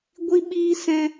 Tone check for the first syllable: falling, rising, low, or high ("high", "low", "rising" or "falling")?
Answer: high